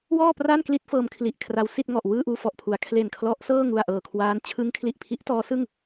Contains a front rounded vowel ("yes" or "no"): no